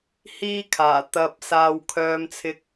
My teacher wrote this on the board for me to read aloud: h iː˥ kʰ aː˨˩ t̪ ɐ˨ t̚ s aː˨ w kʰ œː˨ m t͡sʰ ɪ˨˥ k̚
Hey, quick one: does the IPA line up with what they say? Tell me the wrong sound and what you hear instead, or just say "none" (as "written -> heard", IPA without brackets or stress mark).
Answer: t̚ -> p̚